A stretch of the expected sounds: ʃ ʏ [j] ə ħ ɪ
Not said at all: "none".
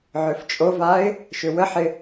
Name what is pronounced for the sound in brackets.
w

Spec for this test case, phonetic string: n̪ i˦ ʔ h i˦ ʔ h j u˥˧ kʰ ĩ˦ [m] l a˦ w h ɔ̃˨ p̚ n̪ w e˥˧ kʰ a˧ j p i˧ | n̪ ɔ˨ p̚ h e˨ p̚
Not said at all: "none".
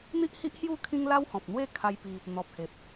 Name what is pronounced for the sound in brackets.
ŋ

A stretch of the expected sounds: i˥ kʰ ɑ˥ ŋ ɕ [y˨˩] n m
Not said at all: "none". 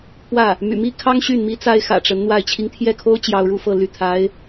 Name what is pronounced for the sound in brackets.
y˥˩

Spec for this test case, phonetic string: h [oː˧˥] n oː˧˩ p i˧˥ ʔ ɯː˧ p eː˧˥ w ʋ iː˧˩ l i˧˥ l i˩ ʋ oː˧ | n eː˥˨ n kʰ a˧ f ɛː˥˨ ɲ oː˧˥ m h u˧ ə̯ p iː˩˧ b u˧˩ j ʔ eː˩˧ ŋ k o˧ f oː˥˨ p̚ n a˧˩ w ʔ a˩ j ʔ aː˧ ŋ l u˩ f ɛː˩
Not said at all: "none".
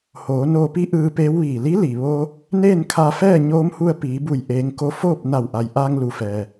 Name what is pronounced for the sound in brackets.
oː˩˧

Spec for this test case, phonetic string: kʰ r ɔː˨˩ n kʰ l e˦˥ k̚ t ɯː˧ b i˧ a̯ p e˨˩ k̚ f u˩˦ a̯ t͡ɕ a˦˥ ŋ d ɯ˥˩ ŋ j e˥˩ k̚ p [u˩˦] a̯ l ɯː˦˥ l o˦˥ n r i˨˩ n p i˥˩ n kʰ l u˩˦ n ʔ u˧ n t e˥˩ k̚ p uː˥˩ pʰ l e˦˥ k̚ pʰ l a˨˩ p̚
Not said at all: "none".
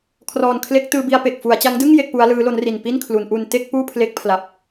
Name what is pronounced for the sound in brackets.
u˦˥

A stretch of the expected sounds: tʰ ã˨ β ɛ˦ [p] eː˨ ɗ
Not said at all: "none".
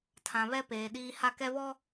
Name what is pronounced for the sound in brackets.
p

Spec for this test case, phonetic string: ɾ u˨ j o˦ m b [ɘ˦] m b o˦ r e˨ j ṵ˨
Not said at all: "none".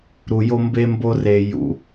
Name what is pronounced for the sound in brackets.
e˦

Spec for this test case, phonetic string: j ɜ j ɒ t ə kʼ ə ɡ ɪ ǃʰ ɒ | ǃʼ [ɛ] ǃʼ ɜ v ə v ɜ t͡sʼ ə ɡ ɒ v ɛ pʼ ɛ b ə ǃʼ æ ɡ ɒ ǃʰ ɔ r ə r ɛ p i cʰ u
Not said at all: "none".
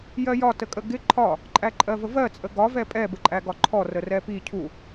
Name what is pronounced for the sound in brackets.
æ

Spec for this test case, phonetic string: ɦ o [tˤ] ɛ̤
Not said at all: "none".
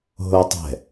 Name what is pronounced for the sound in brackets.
tˤ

